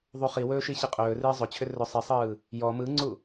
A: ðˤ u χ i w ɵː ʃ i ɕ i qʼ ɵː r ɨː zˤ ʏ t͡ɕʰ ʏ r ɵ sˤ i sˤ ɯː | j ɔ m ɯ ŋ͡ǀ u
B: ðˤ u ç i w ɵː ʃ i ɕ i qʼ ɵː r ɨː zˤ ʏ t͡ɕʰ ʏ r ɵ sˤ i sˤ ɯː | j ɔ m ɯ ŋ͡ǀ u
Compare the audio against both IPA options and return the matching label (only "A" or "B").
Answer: A